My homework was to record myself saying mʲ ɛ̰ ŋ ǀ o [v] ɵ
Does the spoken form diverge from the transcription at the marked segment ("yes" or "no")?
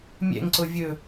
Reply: yes